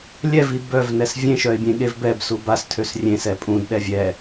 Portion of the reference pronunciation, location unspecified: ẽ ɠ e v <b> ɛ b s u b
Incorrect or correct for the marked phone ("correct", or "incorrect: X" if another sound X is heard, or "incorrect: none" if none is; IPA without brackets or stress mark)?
correct